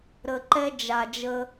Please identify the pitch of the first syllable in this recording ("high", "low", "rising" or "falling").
low